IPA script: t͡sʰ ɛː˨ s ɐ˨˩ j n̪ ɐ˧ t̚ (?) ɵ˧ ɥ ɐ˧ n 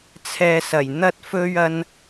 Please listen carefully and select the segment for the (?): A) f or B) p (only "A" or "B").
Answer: A